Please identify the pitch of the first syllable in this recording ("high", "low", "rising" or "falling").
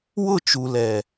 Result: falling